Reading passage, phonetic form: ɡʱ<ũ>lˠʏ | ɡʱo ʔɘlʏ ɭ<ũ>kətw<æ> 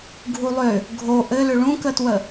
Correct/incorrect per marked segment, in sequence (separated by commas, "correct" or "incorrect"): incorrect, correct, incorrect